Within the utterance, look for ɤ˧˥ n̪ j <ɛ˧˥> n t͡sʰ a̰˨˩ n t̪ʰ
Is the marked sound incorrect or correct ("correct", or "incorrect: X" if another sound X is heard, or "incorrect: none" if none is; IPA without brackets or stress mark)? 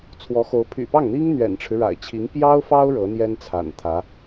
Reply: incorrect: ɛ˥